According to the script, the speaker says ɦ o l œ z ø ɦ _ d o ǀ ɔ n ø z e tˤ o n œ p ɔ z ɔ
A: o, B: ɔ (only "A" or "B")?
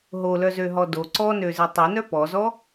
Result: B